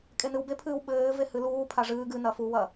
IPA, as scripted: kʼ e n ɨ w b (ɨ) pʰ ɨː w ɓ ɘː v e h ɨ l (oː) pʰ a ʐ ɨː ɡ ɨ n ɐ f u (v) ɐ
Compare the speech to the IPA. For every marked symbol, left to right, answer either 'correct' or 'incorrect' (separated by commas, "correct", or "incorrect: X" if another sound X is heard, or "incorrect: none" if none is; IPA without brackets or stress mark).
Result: incorrect: e, incorrect: uː, incorrect: w